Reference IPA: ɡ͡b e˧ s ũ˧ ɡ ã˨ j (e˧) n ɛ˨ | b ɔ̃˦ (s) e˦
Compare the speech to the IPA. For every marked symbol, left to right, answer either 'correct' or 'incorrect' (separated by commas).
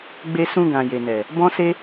incorrect, correct